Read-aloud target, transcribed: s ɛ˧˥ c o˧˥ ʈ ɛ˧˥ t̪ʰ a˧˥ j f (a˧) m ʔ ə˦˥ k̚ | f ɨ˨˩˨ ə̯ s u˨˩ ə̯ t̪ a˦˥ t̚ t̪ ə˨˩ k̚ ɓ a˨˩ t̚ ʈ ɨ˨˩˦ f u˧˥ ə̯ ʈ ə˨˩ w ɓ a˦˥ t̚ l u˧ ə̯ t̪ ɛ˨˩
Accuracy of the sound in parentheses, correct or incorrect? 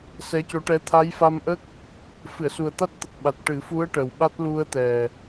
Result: correct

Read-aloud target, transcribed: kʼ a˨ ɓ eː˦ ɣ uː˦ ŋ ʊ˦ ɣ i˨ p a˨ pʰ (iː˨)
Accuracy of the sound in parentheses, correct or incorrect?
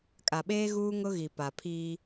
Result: incorrect: iː˦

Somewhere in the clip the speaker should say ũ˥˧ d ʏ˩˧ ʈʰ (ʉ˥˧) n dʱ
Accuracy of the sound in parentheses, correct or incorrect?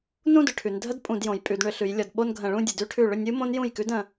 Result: incorrect: ʉ˩˧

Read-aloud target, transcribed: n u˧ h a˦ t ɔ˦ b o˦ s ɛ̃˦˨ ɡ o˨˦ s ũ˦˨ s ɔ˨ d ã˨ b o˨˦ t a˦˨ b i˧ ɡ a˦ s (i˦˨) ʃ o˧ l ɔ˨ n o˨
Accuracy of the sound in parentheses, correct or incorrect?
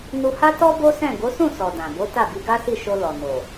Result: correct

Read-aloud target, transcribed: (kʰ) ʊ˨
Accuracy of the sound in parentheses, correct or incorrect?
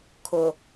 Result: correct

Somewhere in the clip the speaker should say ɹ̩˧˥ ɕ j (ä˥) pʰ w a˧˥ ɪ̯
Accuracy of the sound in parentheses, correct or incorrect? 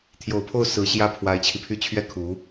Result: incorrect: ä˥˩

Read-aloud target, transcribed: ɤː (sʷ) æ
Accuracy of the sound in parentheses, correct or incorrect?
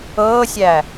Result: incorrect: sʲ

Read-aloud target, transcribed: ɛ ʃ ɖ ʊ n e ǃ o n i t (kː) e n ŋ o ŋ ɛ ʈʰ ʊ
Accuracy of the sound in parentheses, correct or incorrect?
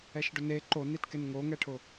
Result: incorrect: k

